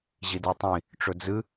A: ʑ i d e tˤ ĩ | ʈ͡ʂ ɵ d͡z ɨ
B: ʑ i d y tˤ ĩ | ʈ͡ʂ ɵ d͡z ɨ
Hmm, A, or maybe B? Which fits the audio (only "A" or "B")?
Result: A